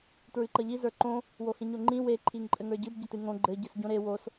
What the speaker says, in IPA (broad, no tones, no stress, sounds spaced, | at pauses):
t ɹ ɨ ǃ ʌ ʎ i z ə˞ ǃ õ | w o h ĩ ɲ o ŋ͡ǃ ĩ w e ǃʰ i ŋ ǃʼ ɘ ŋ ə˞ ɟ ɨ b ɟ ɘ t ɨ ŋ õ ɡ͡ǃ ɘ ɟ ɨ s ɟ õ ɾ e w o s